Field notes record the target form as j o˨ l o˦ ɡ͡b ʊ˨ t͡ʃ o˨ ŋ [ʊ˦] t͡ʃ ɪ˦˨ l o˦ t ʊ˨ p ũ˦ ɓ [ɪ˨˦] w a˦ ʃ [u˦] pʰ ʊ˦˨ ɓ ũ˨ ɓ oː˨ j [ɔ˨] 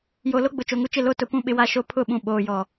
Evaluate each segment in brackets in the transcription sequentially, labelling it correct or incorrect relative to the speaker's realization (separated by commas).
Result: incorrect, correct, incorrect, correct